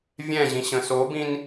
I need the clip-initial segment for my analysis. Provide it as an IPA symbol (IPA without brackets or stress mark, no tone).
vʲ